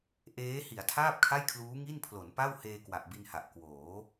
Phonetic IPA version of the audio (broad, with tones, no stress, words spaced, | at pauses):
ʔeː˦˥ hi˩˦a̯tʰaː˥˩p̚kʰa˥˩jkʰluː˦˥ ŋi˥˩npʰlo˩˦npa˥˩w heː˧kwa˨˩ʔbi˧nha˨˩ʔ kwoː˩˦